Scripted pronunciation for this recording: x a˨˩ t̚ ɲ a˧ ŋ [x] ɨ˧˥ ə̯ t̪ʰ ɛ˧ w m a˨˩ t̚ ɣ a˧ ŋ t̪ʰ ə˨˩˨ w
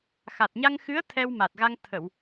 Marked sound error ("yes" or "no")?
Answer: no